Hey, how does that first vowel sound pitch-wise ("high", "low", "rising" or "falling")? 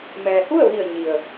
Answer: low